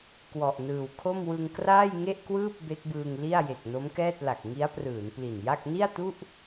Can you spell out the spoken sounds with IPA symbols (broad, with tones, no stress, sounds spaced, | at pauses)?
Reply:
k w ɔ˨˩ ʔ n ɯː˨˩ w kʰ o˥˩ m w ɯ˧ ŋ k r aː˥˩ j ŋ e˥˩ ʔ k w ɯː˥˩ p̚ b e˦˥ k̚ b ɯː˧ ŋ l i˥˩ a̯ j e˨˩ k̚ n o˦˥ m k ɛː˥˩ t̚ l a˨˩ k̚ ŋ i˦˥ a̯ p r ɯː˩˦ n p l i˨˩ n j a˥˩ k̚ n i˥˩ a̯ t u˥˩ ʔ